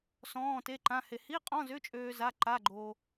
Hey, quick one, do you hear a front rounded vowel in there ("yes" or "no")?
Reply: yes